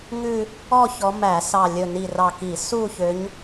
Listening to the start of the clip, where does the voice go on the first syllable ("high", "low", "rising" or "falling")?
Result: falling